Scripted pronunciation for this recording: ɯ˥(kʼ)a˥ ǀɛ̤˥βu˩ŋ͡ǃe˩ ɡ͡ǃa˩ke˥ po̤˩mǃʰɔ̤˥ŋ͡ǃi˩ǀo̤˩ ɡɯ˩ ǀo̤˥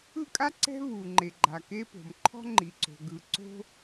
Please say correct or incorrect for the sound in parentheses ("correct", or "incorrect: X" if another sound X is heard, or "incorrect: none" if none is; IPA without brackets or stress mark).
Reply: correct